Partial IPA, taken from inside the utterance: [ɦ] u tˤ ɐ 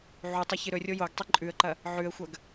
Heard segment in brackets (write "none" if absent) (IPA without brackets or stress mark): ʕ